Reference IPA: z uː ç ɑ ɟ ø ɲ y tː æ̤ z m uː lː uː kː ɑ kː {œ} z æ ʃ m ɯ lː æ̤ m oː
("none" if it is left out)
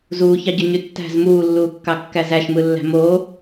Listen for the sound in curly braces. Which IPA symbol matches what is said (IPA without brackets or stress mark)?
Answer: æ